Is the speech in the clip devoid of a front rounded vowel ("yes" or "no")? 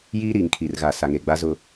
yes